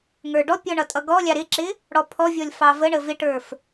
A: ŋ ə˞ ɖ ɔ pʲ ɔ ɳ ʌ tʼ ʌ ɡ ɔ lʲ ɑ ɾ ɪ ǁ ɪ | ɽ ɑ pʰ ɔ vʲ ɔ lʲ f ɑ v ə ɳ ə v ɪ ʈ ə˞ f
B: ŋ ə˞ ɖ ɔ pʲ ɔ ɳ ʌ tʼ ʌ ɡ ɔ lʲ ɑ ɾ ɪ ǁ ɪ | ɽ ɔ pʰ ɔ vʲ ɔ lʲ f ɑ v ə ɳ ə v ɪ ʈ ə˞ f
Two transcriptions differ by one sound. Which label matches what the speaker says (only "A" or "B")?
B